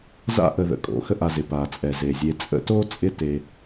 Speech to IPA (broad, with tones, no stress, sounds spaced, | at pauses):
z a̰˦ ʔ ə˨ ð ə̰˩ kʼ o̰˩ x ə˦ ʔ a˨ z ɪ˩ p a˩ t͡sʼ ɛ˩ z e˩ zʲ e˨ t͡sʼ ə̰˦ t o˥ t͡sʼ ɪ˦ t e˨